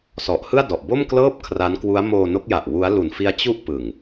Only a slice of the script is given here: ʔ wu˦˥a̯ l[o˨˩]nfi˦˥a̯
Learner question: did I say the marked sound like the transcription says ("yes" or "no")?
no